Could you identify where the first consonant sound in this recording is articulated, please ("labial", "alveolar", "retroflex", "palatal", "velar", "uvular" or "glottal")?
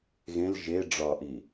velar